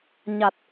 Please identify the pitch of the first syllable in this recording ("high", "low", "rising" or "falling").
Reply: low